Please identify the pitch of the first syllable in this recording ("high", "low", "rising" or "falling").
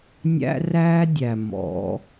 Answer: high